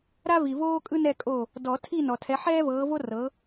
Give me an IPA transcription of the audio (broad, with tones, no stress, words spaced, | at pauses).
ɾa˦vi˨voː˦ kʼɯ˦nɛ˦˨ kʼo˦˨ | dɔ˨˩˦tʰi˦˨ nɔ˨tʰɛ˨˦ ħɛː˦vɤː˨˦vo˦ rɤ˨˦